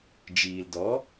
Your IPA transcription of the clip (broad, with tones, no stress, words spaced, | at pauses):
d͡ʒiː˨ldɔ˨˦